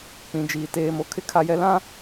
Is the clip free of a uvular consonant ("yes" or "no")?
yes